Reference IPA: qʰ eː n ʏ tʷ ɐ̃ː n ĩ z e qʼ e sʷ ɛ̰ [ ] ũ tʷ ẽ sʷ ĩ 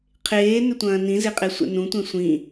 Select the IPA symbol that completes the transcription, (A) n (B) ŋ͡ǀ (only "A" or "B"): A